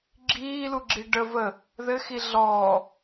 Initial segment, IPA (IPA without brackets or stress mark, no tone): ɡ͡ǁ